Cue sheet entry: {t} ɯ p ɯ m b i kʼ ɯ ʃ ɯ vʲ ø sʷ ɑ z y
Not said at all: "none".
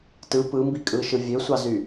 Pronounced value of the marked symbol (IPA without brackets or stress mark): t